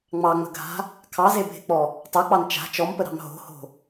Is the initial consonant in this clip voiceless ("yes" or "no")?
no